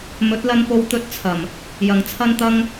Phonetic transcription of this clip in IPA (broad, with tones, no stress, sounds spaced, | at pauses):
m ɵ˨˥ t̚ l ɐ˧ n p o˧ w t̪ ɵ˥ t̚ t͡sʰ ɐ˨˩ m | j ɐ˨˩ ŋ t͡sʰ ɐ˥ n t̪ ɐ˥ ŋ